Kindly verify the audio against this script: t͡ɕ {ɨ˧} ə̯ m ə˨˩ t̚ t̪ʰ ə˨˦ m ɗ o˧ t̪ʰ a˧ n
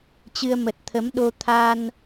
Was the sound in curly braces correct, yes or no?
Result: yes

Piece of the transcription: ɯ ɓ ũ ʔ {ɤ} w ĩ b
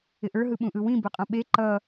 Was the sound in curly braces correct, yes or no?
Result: no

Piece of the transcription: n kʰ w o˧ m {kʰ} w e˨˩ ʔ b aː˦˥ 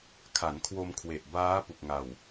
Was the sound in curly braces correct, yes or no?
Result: yes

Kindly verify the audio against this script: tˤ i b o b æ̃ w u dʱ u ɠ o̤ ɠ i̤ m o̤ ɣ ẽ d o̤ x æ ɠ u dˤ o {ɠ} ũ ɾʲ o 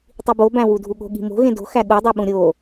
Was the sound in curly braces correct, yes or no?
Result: no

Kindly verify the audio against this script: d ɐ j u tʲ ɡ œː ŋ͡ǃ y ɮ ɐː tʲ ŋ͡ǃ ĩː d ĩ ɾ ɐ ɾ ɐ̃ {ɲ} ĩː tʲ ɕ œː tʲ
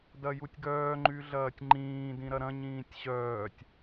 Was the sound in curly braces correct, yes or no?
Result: yes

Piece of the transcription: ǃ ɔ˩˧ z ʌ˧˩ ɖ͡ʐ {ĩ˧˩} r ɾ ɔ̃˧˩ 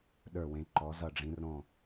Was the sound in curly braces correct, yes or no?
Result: no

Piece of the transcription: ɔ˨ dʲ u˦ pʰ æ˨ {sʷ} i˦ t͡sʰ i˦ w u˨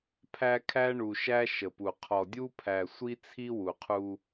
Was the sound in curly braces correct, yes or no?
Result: yes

